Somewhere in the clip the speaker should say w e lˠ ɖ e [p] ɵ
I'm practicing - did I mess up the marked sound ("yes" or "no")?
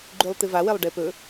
no